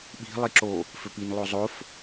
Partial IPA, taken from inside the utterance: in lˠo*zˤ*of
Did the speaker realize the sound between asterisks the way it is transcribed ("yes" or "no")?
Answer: yes